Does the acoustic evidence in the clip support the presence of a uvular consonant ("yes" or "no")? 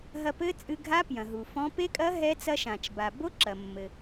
no